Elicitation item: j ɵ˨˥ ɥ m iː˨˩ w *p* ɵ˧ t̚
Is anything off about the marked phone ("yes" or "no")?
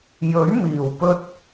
no